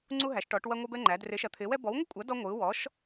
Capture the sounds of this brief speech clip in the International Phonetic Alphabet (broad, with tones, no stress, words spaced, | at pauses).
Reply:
ŋ͡ǀu˥ɦæ˨˥ʃʈɔ˨˥ʈ wɐ˥ŋʷɐ˥bɛ˥ŋ͡ǃæ˨˥ drɪ˨˥ʃɐ˨˥t̪ʰɪː˨˥wɛ˨˥ bɔ˨˥wŋʷɪ˥kʷʼɐ˨˥ dɔ˥ŋʷɯː˨˥ wɔ˨˥ʃ